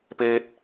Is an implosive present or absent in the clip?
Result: absent